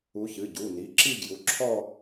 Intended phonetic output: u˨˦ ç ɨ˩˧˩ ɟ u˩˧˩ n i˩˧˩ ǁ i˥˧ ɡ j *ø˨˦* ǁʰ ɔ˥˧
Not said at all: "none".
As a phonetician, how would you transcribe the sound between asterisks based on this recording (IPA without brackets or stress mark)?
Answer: u˨˦